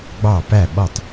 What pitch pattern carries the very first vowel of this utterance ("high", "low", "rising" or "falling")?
falling